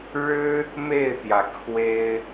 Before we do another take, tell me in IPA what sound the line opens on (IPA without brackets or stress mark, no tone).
ɻ